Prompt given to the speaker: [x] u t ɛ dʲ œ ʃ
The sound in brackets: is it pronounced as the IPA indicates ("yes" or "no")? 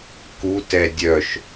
no